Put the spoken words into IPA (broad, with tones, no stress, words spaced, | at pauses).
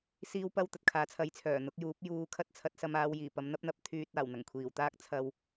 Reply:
siː˥wpɐ˥w t̪ɐ˨t̚kʰaː˨˥t͡sʰɐ˨˥jt͡sʰœː˨˩ n̪ʊ˨˥k̚juː˨˥p̚ juː˧ kʰɐ˥t̚t͡sʰɐ˨˥t̚ sɐ˧maː˨˧w jiː˨˩pɐ˨˧m n̪ɐ˥p̚n̪ɐ˨p̚ t̪ʰyː˧t̚aː˨˩w n̪ɐ˨˩ŋkʷʰiː˨˩wt̪aː˥k̚ t͡sʰɐ˧w